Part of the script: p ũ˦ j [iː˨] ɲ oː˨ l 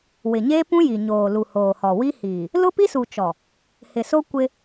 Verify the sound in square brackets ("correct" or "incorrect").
incorrect